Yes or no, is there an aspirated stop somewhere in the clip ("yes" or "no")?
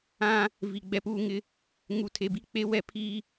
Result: yes